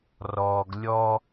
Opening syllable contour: low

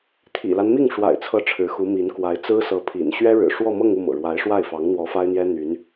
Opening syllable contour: low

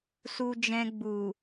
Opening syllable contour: low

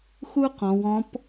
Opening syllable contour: high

